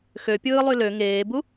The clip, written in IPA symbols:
x ø pʲ ɯː lˠ y l ø ŋ eː b u

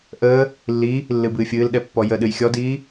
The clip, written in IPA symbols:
ʔ əː | lː i | lː ɨ b ɨː fʲ ɨː l ɗ ɛ pː ɔ j ə ɗ ɨ j xʲ ɔ d iː

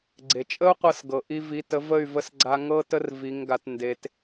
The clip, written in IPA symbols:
ɡ͡ǀ e˨ t͡ʃʼ ə˦ u̯ qʷ ɤ˧ s ɡ ɤ˨ ʔ i˧ v i˨˦ t ə˨˦ v ə˦˨ y̯ v ə˧ s ɡ͡ǀ a˧ ŋ ɤ˧ t ə˦ r v i˨˦ ŋ ɡ a˧ t n d e˦ t

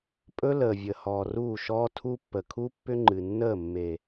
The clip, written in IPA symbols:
pʼ ɵ˦ l əː˨ vʲ ə˨ h ɔː˨ r uː˦˨ ʃ ɔː˦ tʰ u˦ pː ə˨ kʰ u˦ pː ʏ˦ ŋ͡ǃ ɨ˨ nː əː˦˨ mː e˨

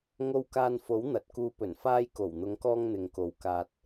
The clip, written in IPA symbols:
ŋ o˧ w k aː˧ n f o˨˥ w n̪ ɐ˨ t̚ k uː˧ p ɵ˨˩ n f aː˧ j k o˨˩ w n̪ ʊ˨˧ ŋ k ɔː˧ ŋ n̪ ɪ˨ ŋ k o˨ w k aː˧ t̚

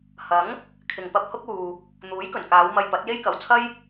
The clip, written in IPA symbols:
h ɐ˨˥ ŋ | kʰ ɪ˨ ŋ p ɐ˧ p̚ h ʊ˥ k̚ uː˨ | n̪ uː˨˥ j k ɵ˨˩ n k aː˨˧ w m ɐ˧ j p ɐ˨˥ t̚ j e˥ j k ɐ˨ w t͡sʰ ɐ˥ j

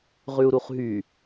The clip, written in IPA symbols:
ʁ ʉ u̯ ɾ u χ ɦ y

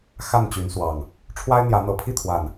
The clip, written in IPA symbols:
x a˥˨ n t͡ɕ y˨˦ n s w ɑ˨˩ ŋ | ʈ͡ʂʰ w a˦ ɪ̯ n̪ j ä˨˦ n̪ ɤ˨˩ pʰ i˥˨ t̪ʰ w a˨˩ n

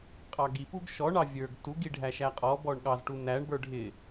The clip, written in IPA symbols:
qʼ ɑ ɡ i p u ɡ ʃ ɔ ɳ ɑ vʲ ə˞ ɡ t u ɡ i ɖʱ æ ʃ æ qʼ ɔ b ɔ ɳ ɠ ɑ z ʈ u n æ ɳ b ə˞ ɖʱ ɪ

